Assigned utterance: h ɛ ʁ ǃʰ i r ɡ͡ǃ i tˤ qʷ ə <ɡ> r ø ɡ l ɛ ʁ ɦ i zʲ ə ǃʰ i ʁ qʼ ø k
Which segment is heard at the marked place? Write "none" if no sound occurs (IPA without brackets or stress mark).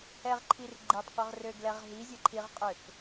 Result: ʁ